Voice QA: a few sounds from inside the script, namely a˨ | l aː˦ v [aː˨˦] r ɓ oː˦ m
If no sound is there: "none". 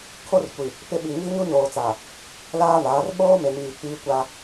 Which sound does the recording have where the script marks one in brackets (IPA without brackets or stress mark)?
aː˨˦